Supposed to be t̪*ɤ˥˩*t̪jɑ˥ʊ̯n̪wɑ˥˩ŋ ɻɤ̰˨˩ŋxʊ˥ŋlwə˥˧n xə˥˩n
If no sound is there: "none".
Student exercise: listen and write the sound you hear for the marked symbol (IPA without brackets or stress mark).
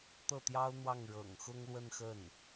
ɤ˥˩